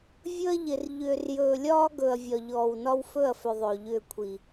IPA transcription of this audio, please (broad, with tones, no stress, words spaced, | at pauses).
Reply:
vʲɵ˦ɐ̯ʎɪ˨r ʎʏː˨rjɵː˨lʲɒː˦ɡɵ˨ɐ̯ vʲɒ˨ʎɔː˨wnɒ˦w fɵ˦˨ɐ̯fʏ˨ ðˤɵː˨ʎʏː˦˨kʷʰi˨